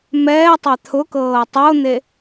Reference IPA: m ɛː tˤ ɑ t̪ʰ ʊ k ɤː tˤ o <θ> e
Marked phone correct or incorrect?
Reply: incorrect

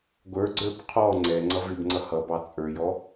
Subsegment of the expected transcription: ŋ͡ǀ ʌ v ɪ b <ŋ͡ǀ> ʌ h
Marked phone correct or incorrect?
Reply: correct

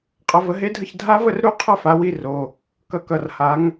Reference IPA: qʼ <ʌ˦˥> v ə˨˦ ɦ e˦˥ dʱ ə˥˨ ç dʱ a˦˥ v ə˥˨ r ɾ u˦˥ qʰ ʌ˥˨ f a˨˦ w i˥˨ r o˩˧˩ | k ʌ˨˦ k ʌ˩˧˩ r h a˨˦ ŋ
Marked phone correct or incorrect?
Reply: incorrect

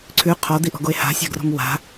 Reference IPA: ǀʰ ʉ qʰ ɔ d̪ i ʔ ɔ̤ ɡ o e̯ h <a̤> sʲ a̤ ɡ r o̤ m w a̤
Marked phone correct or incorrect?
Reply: correct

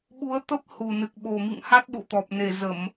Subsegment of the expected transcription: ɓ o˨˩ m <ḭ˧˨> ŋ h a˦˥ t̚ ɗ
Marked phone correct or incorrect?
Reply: correct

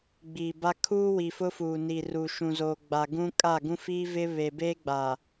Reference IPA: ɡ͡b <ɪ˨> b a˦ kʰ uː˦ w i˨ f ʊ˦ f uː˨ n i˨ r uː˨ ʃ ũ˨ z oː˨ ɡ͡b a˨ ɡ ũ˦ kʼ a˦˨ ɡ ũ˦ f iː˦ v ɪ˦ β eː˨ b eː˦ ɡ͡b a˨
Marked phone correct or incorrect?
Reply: incorrect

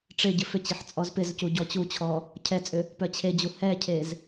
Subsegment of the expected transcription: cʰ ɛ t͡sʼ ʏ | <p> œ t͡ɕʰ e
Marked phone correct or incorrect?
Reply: correct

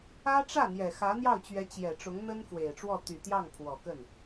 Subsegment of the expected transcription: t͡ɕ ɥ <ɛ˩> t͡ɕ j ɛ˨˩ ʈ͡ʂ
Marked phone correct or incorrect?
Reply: incorrect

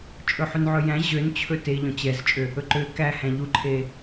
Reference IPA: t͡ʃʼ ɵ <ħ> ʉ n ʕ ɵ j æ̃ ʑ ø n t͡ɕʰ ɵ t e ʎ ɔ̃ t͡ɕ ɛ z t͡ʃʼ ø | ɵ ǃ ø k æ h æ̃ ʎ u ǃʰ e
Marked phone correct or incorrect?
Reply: correct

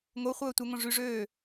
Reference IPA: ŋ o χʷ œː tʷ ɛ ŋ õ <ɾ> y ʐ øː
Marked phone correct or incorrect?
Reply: incorrect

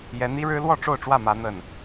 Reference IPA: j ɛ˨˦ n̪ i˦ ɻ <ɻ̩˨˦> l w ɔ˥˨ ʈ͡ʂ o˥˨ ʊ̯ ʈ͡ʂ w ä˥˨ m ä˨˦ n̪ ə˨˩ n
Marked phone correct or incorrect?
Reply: incorrect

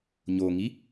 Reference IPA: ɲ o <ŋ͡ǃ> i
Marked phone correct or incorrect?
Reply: incorrect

